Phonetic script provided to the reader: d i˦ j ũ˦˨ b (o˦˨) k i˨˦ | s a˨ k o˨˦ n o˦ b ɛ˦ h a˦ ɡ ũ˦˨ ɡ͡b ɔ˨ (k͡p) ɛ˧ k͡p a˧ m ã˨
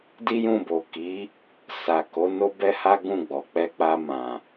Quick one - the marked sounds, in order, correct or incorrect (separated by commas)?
incorrect, correct